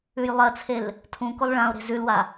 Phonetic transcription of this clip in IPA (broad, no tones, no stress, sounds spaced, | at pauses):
ʉ j lˠ ɐ t͡sʰ e l | tʰ ũ k o lˠ ɭ ã o̯ ɾ e̤ z ʉ l w a